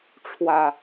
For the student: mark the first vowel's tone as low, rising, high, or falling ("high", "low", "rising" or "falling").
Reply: low